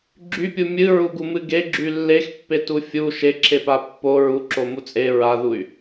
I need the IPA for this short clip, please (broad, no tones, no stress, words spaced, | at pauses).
ɡ͡ǁypʲu mʲɨɹuɡumɨ ɡeɡ͡ǁy lːexpːetu fʲu ʃeǁʰepa pːo ɹuǁomu t͡sʼe ɹaðuy̯